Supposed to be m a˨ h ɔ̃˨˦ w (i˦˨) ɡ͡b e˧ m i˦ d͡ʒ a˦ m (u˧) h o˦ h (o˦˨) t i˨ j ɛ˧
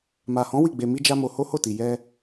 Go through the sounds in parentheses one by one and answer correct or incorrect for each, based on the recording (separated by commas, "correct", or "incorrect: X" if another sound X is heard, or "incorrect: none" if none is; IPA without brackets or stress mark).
correct, incorrect: o˧, correct